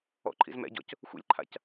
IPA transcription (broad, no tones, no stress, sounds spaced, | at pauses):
ɔ̰ ǃʰ ḭ z m ɛ̰ ɟ ɔ̰ c | xʷ ḭ lʲ ǃʰ a̰ c